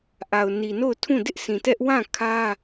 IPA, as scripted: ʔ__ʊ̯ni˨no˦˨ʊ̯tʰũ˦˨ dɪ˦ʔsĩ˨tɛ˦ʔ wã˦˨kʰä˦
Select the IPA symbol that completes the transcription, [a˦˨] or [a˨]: a˨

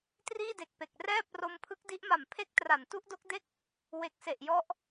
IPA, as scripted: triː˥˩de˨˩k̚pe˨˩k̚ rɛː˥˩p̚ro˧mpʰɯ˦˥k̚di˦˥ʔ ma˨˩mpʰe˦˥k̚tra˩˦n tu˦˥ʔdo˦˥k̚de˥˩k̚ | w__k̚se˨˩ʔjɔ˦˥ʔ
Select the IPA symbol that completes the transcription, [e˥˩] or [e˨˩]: e˨˩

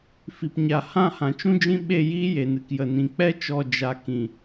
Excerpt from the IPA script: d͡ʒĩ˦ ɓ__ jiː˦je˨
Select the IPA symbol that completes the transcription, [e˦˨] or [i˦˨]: e˦˨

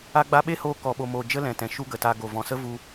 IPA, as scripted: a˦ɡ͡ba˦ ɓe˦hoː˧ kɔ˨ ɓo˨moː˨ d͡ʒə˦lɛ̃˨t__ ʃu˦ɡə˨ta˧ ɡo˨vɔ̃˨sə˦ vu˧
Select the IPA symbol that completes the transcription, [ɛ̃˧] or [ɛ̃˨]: ɛ̃˨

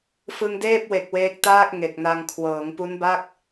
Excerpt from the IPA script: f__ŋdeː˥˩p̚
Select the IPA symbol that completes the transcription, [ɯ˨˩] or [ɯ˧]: ɯ˧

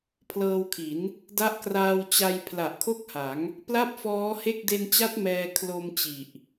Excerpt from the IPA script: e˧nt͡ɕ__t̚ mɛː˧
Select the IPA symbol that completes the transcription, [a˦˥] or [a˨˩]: a˦˥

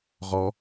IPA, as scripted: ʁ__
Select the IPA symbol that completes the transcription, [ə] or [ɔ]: ɔ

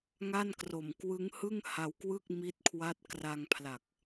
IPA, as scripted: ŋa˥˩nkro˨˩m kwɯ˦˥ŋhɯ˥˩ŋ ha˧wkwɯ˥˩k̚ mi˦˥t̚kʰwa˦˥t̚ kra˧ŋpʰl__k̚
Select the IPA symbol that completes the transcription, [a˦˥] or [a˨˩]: a˨˩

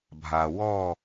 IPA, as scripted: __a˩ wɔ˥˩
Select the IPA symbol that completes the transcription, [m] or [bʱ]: bʱ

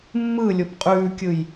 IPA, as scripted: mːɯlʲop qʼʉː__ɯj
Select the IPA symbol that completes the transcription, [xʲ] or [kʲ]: kʲ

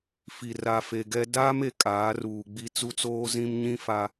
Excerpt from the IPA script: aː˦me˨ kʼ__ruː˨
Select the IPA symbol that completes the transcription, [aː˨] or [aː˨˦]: aː˨˦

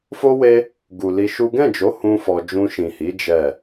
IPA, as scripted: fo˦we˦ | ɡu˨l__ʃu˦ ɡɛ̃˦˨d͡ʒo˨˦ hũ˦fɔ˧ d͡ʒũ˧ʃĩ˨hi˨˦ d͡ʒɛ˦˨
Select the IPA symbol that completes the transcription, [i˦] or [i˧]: i˧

